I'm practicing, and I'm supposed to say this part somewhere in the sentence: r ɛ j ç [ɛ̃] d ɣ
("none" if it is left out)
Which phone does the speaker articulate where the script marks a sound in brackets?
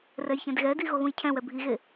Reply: ɛ̃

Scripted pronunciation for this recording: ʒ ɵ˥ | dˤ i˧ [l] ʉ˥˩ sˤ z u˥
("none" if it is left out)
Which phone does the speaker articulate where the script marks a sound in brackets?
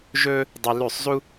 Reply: l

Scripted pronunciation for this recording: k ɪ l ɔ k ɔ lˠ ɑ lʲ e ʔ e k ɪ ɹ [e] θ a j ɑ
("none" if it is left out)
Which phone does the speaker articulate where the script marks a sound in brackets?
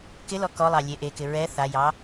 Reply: ɛ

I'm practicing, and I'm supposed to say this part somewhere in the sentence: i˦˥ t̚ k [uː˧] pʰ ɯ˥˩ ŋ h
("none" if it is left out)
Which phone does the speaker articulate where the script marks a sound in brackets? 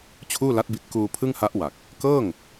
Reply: uː˧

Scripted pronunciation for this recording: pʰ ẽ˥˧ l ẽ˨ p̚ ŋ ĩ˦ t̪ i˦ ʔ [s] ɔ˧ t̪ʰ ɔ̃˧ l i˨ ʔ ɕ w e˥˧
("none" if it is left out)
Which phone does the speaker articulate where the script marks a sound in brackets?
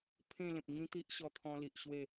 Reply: ɕ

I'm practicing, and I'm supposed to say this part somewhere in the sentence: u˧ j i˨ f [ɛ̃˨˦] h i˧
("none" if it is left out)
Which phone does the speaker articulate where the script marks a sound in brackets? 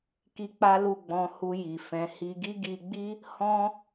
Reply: ɛ̃˨˦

